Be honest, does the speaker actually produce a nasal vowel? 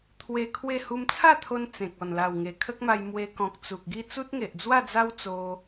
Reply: yes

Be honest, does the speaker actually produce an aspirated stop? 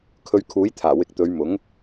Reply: yes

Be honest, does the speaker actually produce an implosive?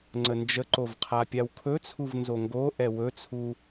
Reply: no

